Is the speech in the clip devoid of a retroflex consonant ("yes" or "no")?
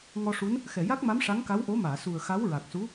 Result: no